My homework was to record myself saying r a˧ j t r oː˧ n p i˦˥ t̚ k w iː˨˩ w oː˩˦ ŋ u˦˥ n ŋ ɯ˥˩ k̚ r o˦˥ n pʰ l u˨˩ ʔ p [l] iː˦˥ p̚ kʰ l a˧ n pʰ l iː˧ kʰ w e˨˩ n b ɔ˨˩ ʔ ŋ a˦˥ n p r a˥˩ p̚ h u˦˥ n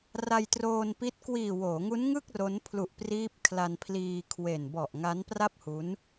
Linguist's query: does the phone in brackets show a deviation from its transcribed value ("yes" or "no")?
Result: yes